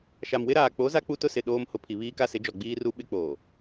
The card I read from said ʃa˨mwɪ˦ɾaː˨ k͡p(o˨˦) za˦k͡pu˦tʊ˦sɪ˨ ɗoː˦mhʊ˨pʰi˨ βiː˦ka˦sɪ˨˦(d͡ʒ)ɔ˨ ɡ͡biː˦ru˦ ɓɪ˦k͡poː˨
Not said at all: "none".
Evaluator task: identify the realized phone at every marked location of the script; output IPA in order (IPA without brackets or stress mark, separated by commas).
o˨˦, d͡ʒ